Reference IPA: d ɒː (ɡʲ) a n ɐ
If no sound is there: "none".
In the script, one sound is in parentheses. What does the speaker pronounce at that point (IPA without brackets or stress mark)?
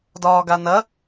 ɡ